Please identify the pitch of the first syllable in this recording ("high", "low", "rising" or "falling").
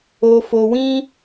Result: low